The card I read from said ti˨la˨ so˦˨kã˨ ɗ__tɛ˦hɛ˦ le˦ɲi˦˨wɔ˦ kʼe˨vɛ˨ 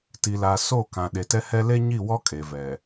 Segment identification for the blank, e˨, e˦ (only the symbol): e˨